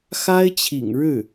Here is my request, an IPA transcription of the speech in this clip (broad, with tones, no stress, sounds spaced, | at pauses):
x a˥ ɪ̯ t͡ɕʰ ḭ˨˩ ŋ ɻ ɻ̩˥˩